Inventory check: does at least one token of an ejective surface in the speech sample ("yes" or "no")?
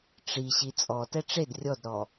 yes